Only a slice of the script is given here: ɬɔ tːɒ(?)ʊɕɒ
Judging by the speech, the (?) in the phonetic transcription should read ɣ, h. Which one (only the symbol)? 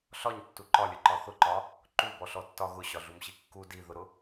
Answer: ɣ